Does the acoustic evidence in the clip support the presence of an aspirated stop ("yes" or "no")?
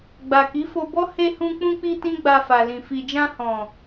no